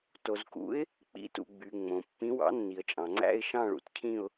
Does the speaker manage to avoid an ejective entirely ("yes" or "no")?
no